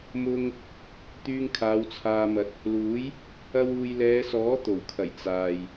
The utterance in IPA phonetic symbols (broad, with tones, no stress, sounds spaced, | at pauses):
m ʊ˧ ŋ | t̪ yː˧ ŋ kʰ aː˨˧ w t͡sʰ aː˧ m ɐ˧ t̚ | l uː˨˥ j | ɐ˧ w uː˨ j l ɛː˨˧ s ɔː˨˥ t̪ o˨˩ w kʰ ɐ˨˩ j t͡s aː˨ j